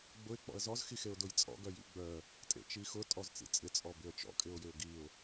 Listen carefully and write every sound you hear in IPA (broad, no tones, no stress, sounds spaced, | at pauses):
ɡ͡b ʊ ɪ̯ k͡p ɔ̰ ə̯ z ɔ z x i x e ʊ̯ d ʊ j t͡sʼ ɔ̰ ɡ œ j ḭ ɡ͡b œ | tʼ ḛ t͡ʃ i x ʊ tʼ ɔ z t͡s ḭ t͡sʼ ɪ t͡sʼ ɔ b ɪ ə̯ t͡ʃ ɔ̰ kʼ ɪ ʊ̯ j ɪ ʊ̯ ɡ i ʊ̯